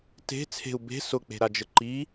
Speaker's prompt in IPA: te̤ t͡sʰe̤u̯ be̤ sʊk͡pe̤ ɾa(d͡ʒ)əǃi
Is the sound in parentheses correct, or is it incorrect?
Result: correct